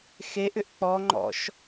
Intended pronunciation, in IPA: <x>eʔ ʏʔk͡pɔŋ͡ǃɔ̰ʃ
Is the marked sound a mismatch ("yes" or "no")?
no